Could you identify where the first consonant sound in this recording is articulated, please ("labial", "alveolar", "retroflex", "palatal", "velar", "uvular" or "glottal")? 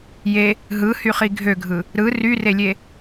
palatal